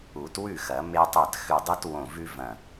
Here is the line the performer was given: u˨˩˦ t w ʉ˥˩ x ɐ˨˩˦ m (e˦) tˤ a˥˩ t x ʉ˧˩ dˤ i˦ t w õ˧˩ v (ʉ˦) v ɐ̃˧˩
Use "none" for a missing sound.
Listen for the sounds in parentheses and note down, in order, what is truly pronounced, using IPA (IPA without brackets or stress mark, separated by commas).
e˦, ʉ˦